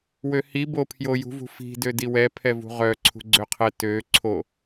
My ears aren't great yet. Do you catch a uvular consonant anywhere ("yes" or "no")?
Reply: yes